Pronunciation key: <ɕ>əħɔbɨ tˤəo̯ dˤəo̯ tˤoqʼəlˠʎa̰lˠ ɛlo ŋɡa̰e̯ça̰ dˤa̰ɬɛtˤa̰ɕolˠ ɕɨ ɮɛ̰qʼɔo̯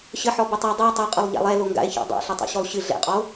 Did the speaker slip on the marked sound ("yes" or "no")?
no